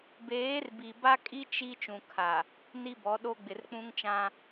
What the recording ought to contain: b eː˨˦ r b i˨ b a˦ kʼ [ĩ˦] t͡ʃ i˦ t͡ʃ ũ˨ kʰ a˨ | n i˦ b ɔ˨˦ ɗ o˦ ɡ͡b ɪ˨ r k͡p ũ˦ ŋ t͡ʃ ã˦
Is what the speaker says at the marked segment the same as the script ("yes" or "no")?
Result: no